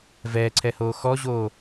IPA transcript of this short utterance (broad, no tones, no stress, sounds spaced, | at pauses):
v ɛː ǀʰ ɛ h oː x ɔ ʑ oː